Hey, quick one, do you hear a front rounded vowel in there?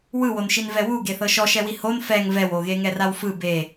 no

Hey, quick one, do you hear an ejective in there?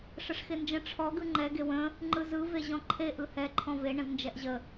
no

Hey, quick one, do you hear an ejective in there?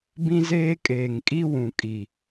yes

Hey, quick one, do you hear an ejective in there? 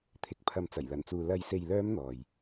no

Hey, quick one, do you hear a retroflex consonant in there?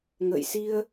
no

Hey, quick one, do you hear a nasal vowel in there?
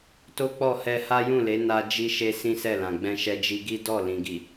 yes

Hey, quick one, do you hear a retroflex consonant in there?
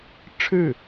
yes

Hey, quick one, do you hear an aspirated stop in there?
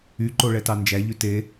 no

